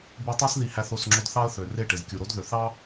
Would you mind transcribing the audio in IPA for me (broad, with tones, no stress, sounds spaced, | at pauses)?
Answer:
b i˧ tˤ e˦ s ð i˧ h æ˧ θ o˦˨ s ŋ͡ǁ o˧ d θ ɑ˦ ə̯ θ ø˨ r e˦˨ ʈ e˨ z kʲ u˨ ɾ o˦ d ð ø˨ θ ɑ˦